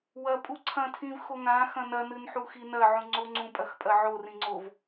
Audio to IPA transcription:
w ɐ pʼ u ǀʰ ɐ̃ tʰ ĩ v x o ŋ ã x ɐ̃ n ɐ n ɨ n ħ u x i n ɐ ʕ ũ ŋ͡ǀ o ŋ͡ǀ ũ pʼ ɐ x pʼ ɐ ʕ o r ĩ ŋ͡ǀ o v

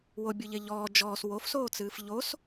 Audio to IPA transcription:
w o bʲ o ʎ e ʎ ɔː d͡ʒ ɔː s w o f s oː t͡s ɨː f ʎ o s

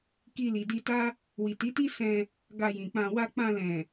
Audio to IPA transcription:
k i˧ l i˨ d i˧ t a˦ | w i˨ t i˨˦ t i˦ s ɛ̃˧ | ɡ a˧ j ĩ˨ k͡p ã˧ w a˧ k͡p ã˧ l ɛ̃˨

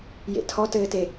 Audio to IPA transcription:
j ḛ tʰ ɔ t ɘː t e

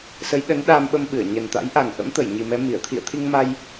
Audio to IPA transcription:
s ə˨˦ j ɗ ə˨˦ n ɗ aː˧ m ɓ ə˧ m ɓ ɨ˧˩ ə̯ ɲ ə˨˩ n t̪ a̰˧˥ j ʔ a˨˩ ŋ ʔ ə̰˧˥ m t̪ ə˧˩ j ɲ i˨˩ m ɛ˨˦ m i˧˩ ə̯ t̪ʰ ḭ˧˨ ə̯ t̪ʰ i˧ ŋ m a˧ j

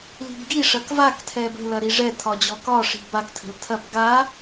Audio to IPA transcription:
l i̤ b ɡ i ʂ ɐ k v a k tʰ ɛ b ə̤ l ɐ ɾ i ʐ ɛ tʰ ɒ d͡ʑ ɔ k ɒ ʂ i̤ b a k tʰ ə̤ l tʰ ɐ b ɡ a

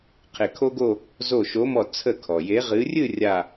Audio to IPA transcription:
qʰ e˧˩ kʰ o˥ ɡ o˥˧ | z o˧˩ ʃ o˨˦ m ɔ˧˩ t͡sʰ ə˥˩ kʰ ɔ˩ j e˨˦ ʁ ɨ˨˦ rʲ ɨ˥˧ rʲ a˥˧

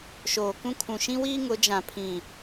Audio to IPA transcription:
ʃ oː˨ k ũ˦ kʰ ũ˨ ʃ ĩ˦ w iː˦ ŋ ʊ˨˦ d͡ʒ ã˨ pʰ ĩ˨

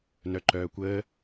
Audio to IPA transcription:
n œ ǃ œː kʷ əː

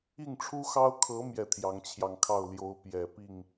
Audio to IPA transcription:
i˥˩ ŋ ʈ͡ʂʰ u˥ x ɑ˥ ʊ̯ kʰ ɤ˧˥ m j ɛ˥˩ t̪ʰ j ɑ˧˥ ŋ t͡ɕʰ j ɑ˧ ŋ kʰ ɑ˥˩ ʊ̯ l j o˧˥ ʊ̯ p j ɛ˨˩ p i˥˩ ŋ

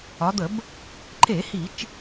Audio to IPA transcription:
ɒ˩˧ d̪ ə˧˩˧ b | ǃ e˧˩˧ h i˧˩˧ t͡ʃ

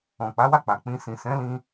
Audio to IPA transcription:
ɔ̃˨ k͡p a˨˦ w a˦˨ k͡p a˨ k͡p ĩ˧ s ĩ˨ s ɛ̃˨˦ l ĩ˧

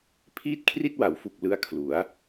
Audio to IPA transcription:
pʰ iː˥˩ t̚ kʰ r i˥˩ t̚ w a˩˦ w f u˨˩ k̚ l ɯ˧ a̯ kʰ l u˩˦ a̯

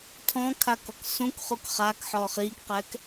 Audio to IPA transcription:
tʰ ɔ̃ kʰ a k ɔ k s ũ k χ u k χ a k ħ ɔː χ iː k q ɛ k

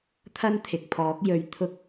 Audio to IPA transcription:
t̪ʰ ɐ˥ n t̪ʰ ɪ˨ k̚ pʰ ɔː˨˥ k̚ j ɵ˨ ɥ t̪ʰ ʊ˧ k̚

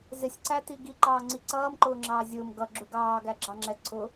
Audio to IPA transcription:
z ɪ sʲ ǀ æ t i ɡ i ǃ ɑː ŋ͡ǀ i ǀ ʌː m ǃ ʊː ŋ͡ǁ ɑː zʲ ʊː m ɡ ʌ ɡ͡ǁ u ɡ ɑː ɡ æ ɡ͡ǁ ɑ ŋ͡ǁ ɛ ǀʰ ʊ

